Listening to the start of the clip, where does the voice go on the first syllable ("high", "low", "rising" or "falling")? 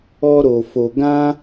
high